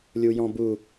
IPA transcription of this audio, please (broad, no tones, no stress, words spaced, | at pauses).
lʲujɔ̃bu